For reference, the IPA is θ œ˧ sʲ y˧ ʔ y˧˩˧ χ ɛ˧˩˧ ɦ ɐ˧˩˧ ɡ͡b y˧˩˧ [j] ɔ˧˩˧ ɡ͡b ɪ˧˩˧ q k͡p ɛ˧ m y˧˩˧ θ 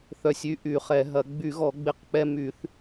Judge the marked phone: incorrect: ɣ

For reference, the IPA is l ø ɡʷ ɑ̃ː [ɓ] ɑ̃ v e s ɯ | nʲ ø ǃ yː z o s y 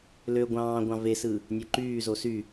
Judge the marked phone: incorrect: ɡʷ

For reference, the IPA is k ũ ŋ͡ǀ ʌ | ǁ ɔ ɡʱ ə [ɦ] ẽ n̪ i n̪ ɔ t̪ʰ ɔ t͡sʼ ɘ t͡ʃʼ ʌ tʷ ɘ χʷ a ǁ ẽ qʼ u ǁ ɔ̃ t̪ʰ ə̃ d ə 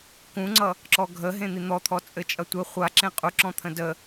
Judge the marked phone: correct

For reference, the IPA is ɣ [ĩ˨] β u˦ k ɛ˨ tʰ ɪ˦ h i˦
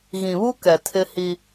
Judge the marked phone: correct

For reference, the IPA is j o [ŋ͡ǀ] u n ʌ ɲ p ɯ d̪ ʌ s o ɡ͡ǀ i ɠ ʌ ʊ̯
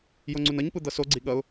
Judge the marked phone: correct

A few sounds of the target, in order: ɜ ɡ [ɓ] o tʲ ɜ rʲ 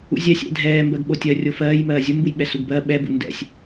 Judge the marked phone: correct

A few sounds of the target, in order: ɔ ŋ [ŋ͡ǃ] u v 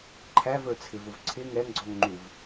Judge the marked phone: correct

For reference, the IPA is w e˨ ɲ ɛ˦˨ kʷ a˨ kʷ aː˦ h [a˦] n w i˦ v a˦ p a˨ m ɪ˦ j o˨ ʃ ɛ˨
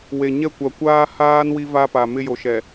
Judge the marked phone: incorrect: aː˦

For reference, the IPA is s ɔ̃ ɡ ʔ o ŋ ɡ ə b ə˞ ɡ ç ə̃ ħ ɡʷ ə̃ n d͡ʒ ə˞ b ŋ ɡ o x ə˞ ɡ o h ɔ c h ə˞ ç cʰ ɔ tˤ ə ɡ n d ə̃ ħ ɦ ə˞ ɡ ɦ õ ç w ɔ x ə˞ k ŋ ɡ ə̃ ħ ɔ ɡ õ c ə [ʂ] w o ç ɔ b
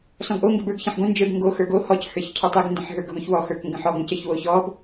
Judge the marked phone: incorrect: ç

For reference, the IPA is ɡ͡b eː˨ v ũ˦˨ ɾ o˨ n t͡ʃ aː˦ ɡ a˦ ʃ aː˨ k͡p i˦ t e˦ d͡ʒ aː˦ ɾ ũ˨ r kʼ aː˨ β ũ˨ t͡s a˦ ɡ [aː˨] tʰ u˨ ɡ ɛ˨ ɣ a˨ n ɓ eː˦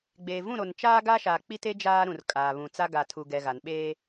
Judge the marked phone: incorrect: a˨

